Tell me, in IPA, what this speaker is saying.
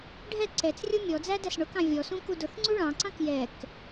ɖʱ ɛ ǀ ɛ t͡s rʲ ʊ mʲ ɔ d͡z æ d æ s ɳ ʊ k ɑ̃ vʲ ɔ s ũ k u d ʊ θ ŋ͡ǀ u ɭ ɑ̃ ǀ ɑ̃ k j ɛ k

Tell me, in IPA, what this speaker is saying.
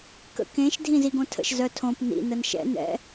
k ə̰ k ẽ ʃ dʱ ĩ z i ɡ õ tʰ ə̰ ʃ z œ tʰ õ p n ḭ n ə n ʃ ɛ̰ n ɛ̰

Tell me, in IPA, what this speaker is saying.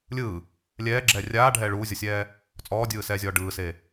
lʲ ɯː | lʲ ɛː ɡ͡ǁ ɛː rʲ aː ɖʱ ɛː ɭ uː zʲ ɔ sʲ ɛː | t͡sʼ ɔː dʲ ɯː s ɛː zʲ ɔː ɖ ɯː s eː

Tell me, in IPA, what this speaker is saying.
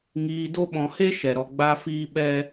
ŋ iː˧ d o˦ ɓ ɔ̃˧ h e˦ ʃ ɛ˨ ɾ ɔ˨ ɡ͡b a˧ f iː˦ ɓ ɛ˦

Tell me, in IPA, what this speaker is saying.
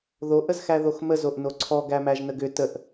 ð o ʔ ə z x æ ð o x m ə z o ʔ n o ǀʰ ɔ ɡ æ m æ ʒ n ə ɡ ʏ t ə ʔ

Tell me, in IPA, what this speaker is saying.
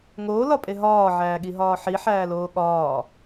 ŋ oː l ɒ pʼ e ɦ ɒː ʕ æː ɠ i ɦ ɒː ħ i ħ æː l oː ɠ ɒː

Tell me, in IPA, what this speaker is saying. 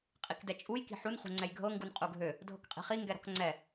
qʼ i k d ɛ t͡ʃʼ u j k i̤ ħ u n χ ṳ ŋ͡ǀ ɛ j ɡʱ ɤ ŋ ɡ u n qʼ u ɡʱ ø | dʱ ɤ k qʼ i̤ χ i ŋ ɡ ɛ ɾ ɔ̤ k ŋ͡ǀ ɛ

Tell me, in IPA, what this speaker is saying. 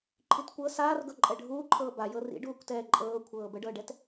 ǃʰ i t kʷ ɤ s aː r ɡ ɤ ǃʼ ɛ ɖʱ uː ǃʰ ɤː b a j ɤ r ḭ ɖ uː kʷ t ɛː ǃʼ ɤː kʷʰ ɤː b ə ɖ ɤː ɖ ɛ t

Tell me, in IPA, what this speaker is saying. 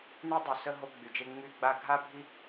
n y˧ dˤ y˨ s ə˧ ɦ o˧ ɡ͡b y˨ d͡ʒ e˧ ŋ͡m y˦˨ ɡ͡b a˧ ɡʱ a˦ bʱ i˦

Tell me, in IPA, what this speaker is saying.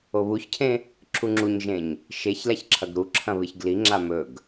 o β u ç cʰ ẽ | ǁʰ u ŋ͡ǁ u ɲ ʒ ẽ ɲ | ʃ e ç l a ç ǁʰ ɐ ɡ ɾ u ǁʰ ɐ̃ β ɨ ç ɡ l i ŋ͡ǁ a m ɵ ɡ

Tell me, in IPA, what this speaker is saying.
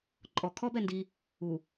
ǃʼ ɔ kʰ ɔ b ɛ n d i | u

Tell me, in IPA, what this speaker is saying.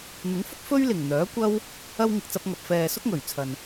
n̪ ɪ˨˥ ŋ f ʊ˥ k̚ f ɵ˥ ɥ l ɪ˨˩ ŋ n̪ œː˨˥ kʷ ɐ˥ w | ɐ˧ w ŋ ɪ˨ k̚ t͡s ɐ˧ p̚ ŋ ɐ˨ p̚ f ɛː˨ s ʊ˥ k̚ ŋ ɵ˨˩ ɥ t͡sʰ ɐ˨ n

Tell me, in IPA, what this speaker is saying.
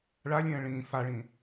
ɭ a lʲ ɛ̃ː ɭ ĩː f a ɭ ĩː

